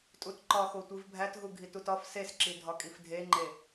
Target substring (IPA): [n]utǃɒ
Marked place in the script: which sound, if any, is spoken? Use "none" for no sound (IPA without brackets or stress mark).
tʼ